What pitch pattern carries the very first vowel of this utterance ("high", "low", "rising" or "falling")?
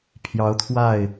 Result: rising